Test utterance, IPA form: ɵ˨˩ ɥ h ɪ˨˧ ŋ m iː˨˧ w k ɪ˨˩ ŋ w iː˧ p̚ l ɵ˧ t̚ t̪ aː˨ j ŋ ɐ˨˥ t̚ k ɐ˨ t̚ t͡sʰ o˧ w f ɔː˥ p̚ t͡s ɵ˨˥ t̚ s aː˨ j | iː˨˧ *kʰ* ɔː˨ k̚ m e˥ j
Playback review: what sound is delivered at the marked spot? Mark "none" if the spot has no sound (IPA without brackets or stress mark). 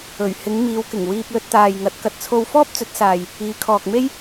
kʰ